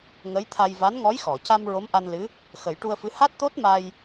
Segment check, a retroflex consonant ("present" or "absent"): present